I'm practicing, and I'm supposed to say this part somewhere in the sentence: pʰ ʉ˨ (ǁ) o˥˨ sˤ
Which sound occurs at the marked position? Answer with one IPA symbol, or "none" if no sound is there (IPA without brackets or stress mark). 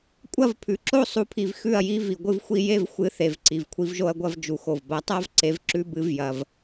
ǁ